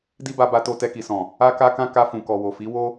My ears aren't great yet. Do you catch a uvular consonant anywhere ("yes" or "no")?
no